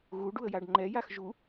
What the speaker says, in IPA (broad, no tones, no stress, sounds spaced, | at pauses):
ɣ u ɖ u ə̯ j a ɖ ŋ͡ǃ ɛ j a x ʒ u